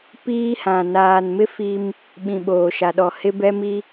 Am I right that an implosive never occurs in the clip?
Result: no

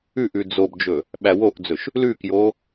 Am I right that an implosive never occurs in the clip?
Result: no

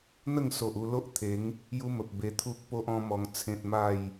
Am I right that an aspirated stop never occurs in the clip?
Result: no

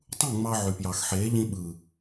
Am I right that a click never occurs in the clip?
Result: yes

